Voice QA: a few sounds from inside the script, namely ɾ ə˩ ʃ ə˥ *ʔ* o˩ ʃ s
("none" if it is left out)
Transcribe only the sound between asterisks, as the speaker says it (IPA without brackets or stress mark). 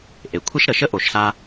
ʔ